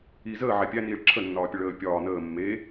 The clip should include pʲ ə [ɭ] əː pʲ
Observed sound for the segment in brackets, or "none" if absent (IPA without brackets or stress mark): ɭ